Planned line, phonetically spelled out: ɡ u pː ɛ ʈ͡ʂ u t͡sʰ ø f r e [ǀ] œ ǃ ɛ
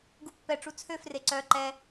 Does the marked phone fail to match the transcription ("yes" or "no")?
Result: no